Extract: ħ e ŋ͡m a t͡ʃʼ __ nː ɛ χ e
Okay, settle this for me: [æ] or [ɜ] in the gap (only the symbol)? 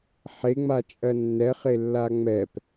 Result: ɜ